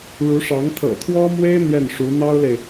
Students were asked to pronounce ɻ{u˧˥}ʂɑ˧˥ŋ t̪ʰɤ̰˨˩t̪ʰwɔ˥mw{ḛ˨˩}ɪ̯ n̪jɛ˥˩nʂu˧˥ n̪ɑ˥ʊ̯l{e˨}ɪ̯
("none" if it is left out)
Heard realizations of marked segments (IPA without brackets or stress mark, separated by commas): u˧˥, e˥, e˨